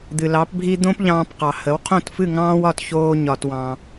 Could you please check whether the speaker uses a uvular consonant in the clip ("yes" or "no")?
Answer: yes